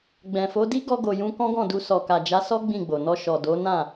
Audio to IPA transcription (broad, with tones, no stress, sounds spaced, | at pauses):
ɡ͡b ɛ̃˨ f o˨˦ d i˦ ɡ ɔ˧ ɡ o˨ j ũ˧ k ɔ̃˦ ɡ ɔ̃˦˨ d u˧ s ɔ˨ k a˨ d͡ʒ a˨˦ s ɔ˦ ɡ͡b ĩ˦˨ ɡ͡b o˨ n ɔ˧ ʃ ɔ˨ d o˨˦ n ã˦˨